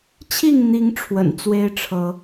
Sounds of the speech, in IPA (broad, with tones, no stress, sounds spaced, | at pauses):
t͡ɕʰ i˥˨ ŋ n̪ i˨˦ ŋ ʈ͡ʂʰ w ə̰˨˩ n t͡s w e˦ ɪ̯ ʈ͡ʂʰ ɤ˨˦